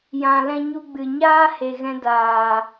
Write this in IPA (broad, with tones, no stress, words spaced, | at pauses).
jã˨lɛ̃˧ ɲu˧ɡ͡bɨ˨ɲaː˦ he˨ɣɛ̃˧daː˨